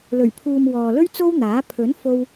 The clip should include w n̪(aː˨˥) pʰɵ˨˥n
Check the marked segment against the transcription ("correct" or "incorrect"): correct